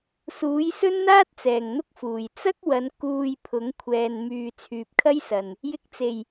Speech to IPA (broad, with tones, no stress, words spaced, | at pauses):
suː˨˥jsɵ˥nn̪aː˥t̚t͡sɛː˨˩ŋ n̪ʊ˥k̚fuː˨˩j t͡sɐ˥k̚wɐ˨˧n kuː˧j pʰʊ˨˥ŋkʷʰɛː˨n myː˨ t͡sʰyː˨p̚kʰɐ˥jsɐ˨n | jɪ˨˥k̚t͡se˨˩j